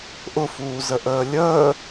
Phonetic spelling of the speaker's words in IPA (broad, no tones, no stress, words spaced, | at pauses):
ʔʊfuːzəʔəː lʲəː